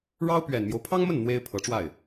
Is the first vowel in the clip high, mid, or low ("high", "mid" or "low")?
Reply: low